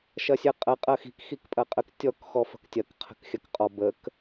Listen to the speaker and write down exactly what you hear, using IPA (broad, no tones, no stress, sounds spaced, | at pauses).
ʃ ɐ sʲ ə qʼ ɐ qʼ ɐ x i̤ k x i k pʼ ɐ qʼ ə k tʲ ɔ k x ɔ f ə̤ k tʲ ɐ k qʰ ə̤ k xʲ ɐ k qʼ ɔ b ə k